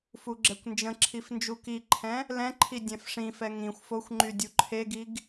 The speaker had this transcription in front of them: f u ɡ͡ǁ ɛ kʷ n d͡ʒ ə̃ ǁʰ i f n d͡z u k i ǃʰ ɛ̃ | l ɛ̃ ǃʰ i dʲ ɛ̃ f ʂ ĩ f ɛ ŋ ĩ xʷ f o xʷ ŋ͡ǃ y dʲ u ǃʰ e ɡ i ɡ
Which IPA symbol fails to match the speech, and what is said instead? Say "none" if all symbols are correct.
d͡z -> d͡ʒ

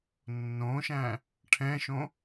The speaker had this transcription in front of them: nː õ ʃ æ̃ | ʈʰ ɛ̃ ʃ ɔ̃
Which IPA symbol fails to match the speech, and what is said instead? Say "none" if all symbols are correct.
ɔ̃ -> õ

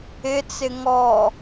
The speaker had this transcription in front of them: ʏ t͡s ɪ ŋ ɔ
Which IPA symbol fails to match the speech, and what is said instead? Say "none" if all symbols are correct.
ʏ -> ɪ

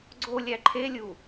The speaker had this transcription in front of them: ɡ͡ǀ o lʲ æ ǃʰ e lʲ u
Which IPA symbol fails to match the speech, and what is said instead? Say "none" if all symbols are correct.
none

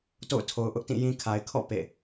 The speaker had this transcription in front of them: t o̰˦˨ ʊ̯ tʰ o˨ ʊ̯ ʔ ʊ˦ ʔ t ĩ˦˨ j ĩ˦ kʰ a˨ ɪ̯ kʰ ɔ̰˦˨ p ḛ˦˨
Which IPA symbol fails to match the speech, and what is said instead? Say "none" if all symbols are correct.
none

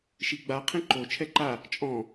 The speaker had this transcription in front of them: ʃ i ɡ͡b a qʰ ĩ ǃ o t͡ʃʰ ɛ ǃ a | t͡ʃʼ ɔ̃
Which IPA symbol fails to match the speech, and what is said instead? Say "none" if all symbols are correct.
none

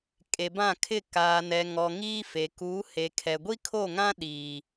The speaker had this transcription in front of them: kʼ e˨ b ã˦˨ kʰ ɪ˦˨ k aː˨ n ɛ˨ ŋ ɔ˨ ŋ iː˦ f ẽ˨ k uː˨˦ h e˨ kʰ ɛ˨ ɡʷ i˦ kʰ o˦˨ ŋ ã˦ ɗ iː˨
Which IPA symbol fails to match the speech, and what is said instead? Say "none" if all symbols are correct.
ẽ˨ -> e˨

